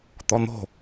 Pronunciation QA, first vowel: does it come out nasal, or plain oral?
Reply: oral